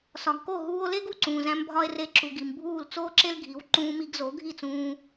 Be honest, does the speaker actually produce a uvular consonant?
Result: no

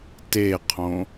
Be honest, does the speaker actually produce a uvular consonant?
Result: yes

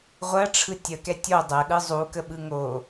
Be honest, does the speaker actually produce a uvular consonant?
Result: yes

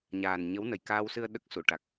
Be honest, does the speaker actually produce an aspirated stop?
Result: no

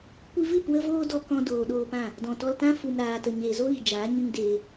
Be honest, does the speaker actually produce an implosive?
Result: yes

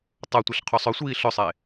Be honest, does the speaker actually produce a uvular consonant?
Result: yes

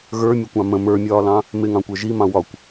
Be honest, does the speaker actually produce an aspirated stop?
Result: no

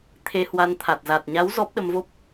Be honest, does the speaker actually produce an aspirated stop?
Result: yes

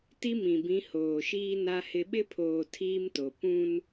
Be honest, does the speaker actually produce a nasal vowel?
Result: yes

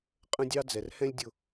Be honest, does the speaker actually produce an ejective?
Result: yes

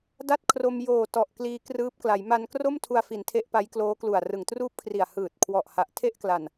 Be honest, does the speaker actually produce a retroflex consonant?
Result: no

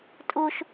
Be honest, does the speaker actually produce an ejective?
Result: yes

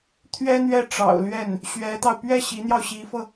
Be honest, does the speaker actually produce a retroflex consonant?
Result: yes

